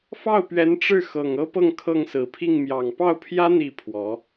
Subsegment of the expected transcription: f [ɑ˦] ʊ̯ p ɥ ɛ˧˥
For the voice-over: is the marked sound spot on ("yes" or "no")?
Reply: no